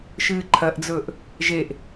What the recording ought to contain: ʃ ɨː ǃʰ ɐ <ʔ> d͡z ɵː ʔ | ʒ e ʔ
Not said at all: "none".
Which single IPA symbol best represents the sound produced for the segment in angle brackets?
ʔ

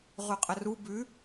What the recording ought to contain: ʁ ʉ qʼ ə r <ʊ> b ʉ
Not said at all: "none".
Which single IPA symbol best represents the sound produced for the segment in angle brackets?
u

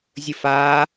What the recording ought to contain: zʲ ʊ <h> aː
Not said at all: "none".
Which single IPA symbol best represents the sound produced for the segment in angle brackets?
f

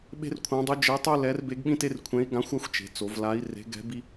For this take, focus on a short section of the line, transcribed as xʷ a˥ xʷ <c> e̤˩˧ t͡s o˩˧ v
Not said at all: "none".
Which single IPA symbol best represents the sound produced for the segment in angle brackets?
t͡ʃ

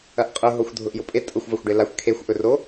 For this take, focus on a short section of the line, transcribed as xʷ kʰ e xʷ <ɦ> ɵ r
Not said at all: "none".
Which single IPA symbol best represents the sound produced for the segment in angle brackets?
ʔ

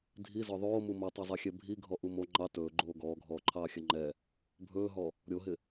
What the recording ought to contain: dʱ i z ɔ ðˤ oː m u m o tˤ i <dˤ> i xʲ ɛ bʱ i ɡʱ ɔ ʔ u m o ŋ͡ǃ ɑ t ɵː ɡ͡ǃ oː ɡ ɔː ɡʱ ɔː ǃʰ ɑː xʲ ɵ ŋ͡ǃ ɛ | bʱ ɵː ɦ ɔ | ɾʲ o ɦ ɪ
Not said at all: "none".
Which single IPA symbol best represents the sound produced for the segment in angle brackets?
zˤ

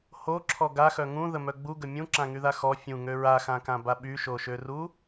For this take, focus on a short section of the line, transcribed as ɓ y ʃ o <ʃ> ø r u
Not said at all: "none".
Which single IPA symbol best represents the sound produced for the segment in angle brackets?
ʃ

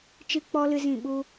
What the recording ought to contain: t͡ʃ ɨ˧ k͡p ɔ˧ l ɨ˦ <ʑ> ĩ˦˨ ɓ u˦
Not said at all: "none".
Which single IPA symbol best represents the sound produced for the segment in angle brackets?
z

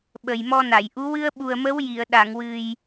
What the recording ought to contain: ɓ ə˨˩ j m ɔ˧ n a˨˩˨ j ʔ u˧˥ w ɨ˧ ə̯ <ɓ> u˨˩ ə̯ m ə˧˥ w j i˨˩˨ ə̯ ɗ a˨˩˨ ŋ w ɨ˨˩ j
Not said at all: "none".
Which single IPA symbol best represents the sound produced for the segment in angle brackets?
ɓ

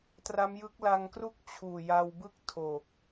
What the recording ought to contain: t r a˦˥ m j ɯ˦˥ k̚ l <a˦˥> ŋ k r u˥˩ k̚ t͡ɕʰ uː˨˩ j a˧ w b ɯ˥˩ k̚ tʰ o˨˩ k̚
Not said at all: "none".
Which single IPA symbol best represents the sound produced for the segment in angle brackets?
a˧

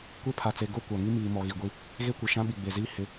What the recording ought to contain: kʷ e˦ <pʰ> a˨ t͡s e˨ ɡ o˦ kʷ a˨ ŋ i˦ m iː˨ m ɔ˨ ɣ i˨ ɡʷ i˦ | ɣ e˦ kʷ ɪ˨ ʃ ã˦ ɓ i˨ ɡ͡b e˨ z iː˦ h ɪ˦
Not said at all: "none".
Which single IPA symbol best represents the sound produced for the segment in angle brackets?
pʰ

